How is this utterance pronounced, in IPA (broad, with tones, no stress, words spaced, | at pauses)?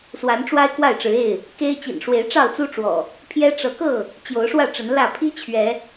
swa˨˦nʈ͡ʂwa˦ɪ̯ kwa˥˨ɪ̯ʈ͡ʂɻ̩˨˦e˥˨ɪ̯ | ke˦ɪ̯ t͡ɕḭ˨˩nʂwe˨˦ɪ̯ ʈ͡ʂɑ˥˨ʊ̯t͡su˦ʈ͡ʂwɔ̰˨˩ | pʰjɛ˦ʈ͡ʂɤ˨˦kɤ˥˨ | t͡ɕjo˨˦ʊ̯ʂwä˥˨ʈ͡ʂə˨˦n lä˥˨ pʰi˦ t͡ɕʰɥɛ˨˦